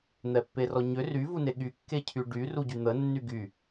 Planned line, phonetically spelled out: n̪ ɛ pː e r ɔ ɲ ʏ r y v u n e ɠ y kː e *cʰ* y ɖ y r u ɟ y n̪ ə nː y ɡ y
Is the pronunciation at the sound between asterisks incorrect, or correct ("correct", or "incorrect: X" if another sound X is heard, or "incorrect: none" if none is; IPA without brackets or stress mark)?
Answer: correct